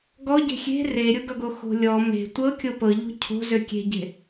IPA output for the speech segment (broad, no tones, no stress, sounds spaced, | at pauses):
ɡ ɔ ɟ e̤ xʲ e̤ r e ɾʲ o ɡ ʌ ɡ o x o̤ lʲ ɔ m e̤ tʷ ɤ kʲ o p ɤ ʎ o̤ cʰ o̤ z ø kʲ e̤ ɟ e̤